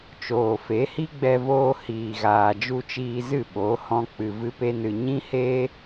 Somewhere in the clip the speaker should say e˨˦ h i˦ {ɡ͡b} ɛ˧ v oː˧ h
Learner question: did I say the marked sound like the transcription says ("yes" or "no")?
yes